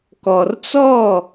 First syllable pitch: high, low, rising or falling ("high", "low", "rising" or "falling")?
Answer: low